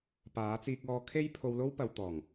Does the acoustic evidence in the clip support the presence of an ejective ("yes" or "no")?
no